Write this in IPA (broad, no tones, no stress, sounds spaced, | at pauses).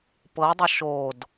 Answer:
p ɤ dˤ ʌ ʃ o d